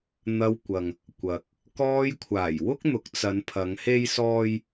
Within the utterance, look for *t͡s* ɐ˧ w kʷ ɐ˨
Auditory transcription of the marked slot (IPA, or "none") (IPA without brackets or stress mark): n̪